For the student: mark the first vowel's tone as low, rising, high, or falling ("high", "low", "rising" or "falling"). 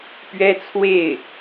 high